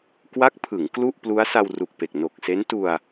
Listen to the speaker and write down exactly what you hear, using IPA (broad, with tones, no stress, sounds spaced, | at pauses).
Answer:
k w a˦˥ k̚ pʰ ɯ˩˦ ŋ k l u˥˩ ʔ p l u˦˥ a̯ s a˧ w r u˨˩ k̚ p e˨˩ k̚ n o˨˩ k̚ s e˦˥ n t u˧ a̯